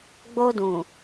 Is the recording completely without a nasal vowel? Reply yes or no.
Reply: no